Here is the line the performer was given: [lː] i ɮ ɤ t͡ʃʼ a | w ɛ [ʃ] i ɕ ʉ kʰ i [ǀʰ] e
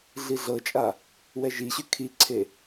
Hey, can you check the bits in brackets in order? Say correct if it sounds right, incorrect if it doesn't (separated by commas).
incorrect, incorrect, correct